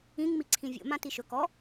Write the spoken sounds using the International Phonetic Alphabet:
ĩ ŋ m i ǀʰ ĩ vʲ o̰ m ã t i ʃ ɵ k ɔ

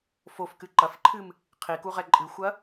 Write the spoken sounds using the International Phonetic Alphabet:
f o f k ɨ ǃ ɐ f ǃʰ ɨ m | qʰ i k u ʁ ɛ ǃʼ ɨ xʷ ɐ

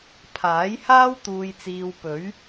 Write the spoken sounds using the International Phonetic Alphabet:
pʰ aː˨˥ j h aː˥ w t̪ uː˧ j t͡s iː˧ w p ɵ˨˥ ɥ

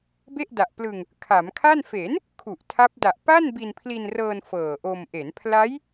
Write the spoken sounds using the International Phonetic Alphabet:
b e˥˩ ʔ d a˨˩ ʔ p l ɯ˧ ŋ | kʰ a˩˦ m kʰ a˥˩ n f e˩˦ n | kʰ u˨˩ ʔ tʰ a˦˥ p̚ d a˨˩ ʔ p a˥˩ n b i˧ n pʰ l i˧ n r ɤː˧ n f ɤː˨˩ ʔ o˧ m ʔ e˩˦ n pʰ l a˦˥ j

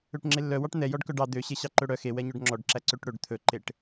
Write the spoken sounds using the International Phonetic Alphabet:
ø ʈ ŋ͡ǁ e lː œ w ɑ ʈ n̪ ɛ j ɔ ɖ k œ ɖ ɑ d̪ ø ɕ e ɕ ɑ ǃ ɵ ɽ œ x e w ɛ ɲ œ ɖ ŋ͡ǁ ɔ ɖ ǁ æ ǀ ø ʈ ɽ ɵ ɖ t̪ʰ ɵ ǃ e ʈ

